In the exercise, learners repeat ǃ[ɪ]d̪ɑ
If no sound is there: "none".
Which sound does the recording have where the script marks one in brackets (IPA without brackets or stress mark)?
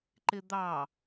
ɪ